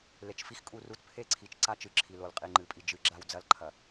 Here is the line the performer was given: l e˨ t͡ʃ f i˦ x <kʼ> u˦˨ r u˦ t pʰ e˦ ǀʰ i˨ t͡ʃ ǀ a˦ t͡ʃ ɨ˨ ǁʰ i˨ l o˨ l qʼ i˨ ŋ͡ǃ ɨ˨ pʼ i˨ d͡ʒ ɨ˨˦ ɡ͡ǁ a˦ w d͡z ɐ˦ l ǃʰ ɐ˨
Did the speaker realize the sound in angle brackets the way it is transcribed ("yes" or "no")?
yes